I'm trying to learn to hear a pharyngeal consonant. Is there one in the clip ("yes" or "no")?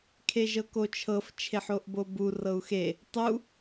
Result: yes